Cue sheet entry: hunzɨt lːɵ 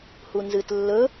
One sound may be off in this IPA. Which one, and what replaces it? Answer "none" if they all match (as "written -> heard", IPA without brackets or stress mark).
none